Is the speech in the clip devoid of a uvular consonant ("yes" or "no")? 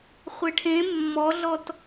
no